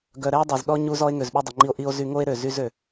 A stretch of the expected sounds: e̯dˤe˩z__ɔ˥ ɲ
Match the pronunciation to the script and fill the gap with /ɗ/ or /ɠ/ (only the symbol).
ɗ